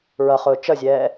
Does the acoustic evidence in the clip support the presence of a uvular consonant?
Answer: yes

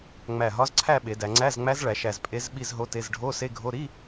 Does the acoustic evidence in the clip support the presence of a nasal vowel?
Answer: no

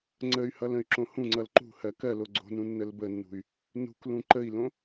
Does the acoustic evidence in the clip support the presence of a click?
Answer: yes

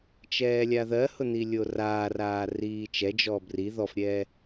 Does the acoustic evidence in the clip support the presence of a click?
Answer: no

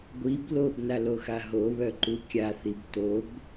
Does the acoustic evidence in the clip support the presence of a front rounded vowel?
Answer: yes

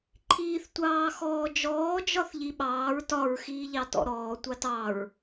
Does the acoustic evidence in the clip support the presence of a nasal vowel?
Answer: no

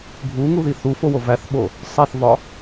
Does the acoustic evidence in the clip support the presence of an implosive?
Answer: yes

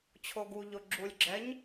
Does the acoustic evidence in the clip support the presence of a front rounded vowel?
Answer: no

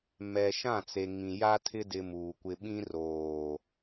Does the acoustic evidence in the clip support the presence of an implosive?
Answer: yes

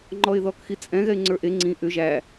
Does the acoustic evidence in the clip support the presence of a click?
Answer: yes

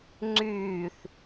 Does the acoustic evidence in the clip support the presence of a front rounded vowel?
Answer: yes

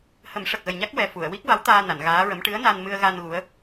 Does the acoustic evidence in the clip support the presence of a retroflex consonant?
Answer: yes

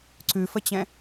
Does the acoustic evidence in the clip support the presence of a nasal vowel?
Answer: yes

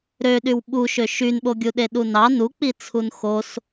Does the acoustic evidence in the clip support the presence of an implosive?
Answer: yes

